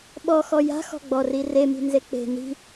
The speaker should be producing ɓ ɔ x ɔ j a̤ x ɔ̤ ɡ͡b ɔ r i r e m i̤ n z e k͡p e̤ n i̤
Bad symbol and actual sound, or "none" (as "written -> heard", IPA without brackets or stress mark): none